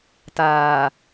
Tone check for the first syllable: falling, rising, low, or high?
low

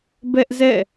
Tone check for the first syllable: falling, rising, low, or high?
high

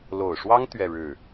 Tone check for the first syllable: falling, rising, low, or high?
low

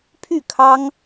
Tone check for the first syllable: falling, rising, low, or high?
falling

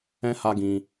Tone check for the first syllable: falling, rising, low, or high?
high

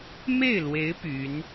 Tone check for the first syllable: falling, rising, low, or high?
falling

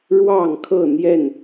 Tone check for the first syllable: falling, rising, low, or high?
falling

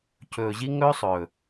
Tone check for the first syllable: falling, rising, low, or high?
low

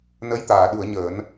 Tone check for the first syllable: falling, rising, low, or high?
rising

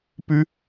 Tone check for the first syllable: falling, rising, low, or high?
high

